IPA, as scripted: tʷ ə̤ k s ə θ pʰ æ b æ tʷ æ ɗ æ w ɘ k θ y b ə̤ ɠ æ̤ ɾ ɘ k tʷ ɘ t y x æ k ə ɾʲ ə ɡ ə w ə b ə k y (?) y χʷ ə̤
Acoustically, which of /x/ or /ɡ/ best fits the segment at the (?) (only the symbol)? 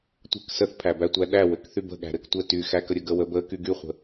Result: ɡ